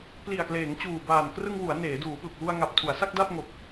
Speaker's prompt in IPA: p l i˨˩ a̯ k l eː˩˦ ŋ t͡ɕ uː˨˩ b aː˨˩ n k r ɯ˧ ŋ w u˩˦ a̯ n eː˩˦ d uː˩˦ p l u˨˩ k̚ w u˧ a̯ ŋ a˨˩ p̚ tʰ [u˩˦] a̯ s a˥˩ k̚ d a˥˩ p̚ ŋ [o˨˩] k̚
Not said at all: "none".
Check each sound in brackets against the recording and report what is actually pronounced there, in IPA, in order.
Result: u˩˦, o˨˩

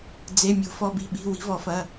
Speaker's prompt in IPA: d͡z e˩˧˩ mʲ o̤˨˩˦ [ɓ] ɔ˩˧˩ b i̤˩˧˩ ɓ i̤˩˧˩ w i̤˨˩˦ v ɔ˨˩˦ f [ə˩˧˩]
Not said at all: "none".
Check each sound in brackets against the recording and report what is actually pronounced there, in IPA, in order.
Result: f, ɐ˩˧˩

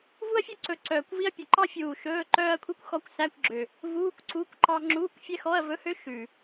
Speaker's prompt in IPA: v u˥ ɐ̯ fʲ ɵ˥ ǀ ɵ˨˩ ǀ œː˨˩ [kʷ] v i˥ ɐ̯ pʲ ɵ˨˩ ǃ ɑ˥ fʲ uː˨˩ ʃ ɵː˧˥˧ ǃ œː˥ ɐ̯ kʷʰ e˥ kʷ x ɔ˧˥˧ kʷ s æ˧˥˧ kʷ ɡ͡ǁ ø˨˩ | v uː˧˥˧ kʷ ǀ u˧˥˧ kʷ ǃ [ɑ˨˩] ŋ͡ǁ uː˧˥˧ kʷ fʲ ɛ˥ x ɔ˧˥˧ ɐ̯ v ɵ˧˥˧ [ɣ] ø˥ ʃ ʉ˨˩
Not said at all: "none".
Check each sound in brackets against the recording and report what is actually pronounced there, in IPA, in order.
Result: kʷ, ɑ˥, h

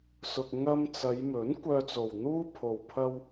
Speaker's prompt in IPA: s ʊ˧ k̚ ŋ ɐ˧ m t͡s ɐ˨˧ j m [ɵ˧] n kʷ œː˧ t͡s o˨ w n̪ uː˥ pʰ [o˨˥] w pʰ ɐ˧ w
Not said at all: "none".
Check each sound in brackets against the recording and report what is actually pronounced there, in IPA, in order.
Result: ɵ˨˥, o˨

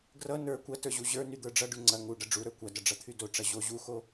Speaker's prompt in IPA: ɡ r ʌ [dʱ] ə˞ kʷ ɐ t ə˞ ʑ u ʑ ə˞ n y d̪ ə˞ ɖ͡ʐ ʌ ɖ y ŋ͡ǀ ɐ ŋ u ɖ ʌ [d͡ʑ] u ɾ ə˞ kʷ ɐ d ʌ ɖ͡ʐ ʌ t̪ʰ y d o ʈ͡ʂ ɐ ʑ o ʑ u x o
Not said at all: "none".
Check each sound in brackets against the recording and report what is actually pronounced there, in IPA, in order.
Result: n, ɖ͡ʐ

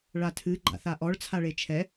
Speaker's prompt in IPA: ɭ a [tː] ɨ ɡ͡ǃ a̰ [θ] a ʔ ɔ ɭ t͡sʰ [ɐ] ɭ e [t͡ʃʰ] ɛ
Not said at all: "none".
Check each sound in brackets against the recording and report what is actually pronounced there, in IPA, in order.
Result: tʰ, θ, a, t͡ʃʰ

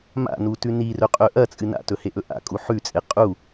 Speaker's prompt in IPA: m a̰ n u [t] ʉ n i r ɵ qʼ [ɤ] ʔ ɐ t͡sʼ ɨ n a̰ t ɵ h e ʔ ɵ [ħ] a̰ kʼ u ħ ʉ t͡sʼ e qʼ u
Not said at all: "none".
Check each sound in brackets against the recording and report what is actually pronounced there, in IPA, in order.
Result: t, ɵ, ʔ

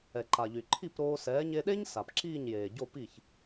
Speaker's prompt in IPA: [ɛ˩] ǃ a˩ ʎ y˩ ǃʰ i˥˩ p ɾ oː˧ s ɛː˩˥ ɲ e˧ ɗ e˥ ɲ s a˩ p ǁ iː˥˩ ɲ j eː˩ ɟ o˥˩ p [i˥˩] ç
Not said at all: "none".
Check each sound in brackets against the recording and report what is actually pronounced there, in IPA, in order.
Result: ɛ˩, i˥˩

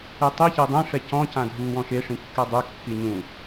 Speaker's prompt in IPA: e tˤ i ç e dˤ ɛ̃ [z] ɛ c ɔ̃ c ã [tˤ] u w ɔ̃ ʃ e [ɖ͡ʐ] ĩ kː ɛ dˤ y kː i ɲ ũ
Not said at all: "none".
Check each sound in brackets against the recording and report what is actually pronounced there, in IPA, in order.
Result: ʂ, dʱ, ʂ

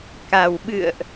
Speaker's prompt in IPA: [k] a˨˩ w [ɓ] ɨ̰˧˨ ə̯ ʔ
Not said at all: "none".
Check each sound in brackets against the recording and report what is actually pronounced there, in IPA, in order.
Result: k, ɓ

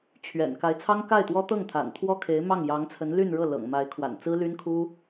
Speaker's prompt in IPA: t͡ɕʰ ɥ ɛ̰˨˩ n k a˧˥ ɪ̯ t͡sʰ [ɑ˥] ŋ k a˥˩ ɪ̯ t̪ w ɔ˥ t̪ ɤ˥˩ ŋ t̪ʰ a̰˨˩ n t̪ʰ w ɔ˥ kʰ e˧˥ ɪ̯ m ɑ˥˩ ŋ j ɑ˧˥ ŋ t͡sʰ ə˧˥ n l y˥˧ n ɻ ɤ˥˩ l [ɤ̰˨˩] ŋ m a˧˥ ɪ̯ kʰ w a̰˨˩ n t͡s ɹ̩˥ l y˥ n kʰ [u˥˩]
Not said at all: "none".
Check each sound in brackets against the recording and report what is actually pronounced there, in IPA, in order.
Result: ɑ˥, ɤ̰˨˩, u˥

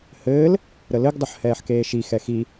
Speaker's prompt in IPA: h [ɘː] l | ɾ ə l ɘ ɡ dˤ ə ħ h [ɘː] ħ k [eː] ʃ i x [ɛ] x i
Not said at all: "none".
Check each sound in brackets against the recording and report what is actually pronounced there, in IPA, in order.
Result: ɘː, ɛː, eː, ɛ

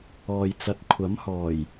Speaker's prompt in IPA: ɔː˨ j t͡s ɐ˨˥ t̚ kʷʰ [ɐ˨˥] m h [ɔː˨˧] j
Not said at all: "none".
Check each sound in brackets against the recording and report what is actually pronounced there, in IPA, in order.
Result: ɐ˨˥, ɔː˨˩

